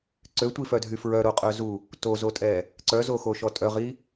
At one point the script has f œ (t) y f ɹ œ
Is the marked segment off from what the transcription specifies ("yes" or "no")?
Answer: yes